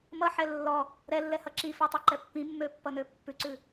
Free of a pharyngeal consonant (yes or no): no